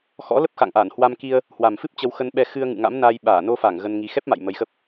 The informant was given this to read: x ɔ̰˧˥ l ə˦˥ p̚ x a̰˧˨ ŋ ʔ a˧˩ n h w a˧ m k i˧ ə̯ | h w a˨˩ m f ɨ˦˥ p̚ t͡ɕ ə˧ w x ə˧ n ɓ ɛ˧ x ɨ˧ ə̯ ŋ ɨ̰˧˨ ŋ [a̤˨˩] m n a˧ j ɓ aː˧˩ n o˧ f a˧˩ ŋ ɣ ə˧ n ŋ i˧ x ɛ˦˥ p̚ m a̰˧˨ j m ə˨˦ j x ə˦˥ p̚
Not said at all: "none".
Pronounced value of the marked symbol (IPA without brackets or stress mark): a̰˧˥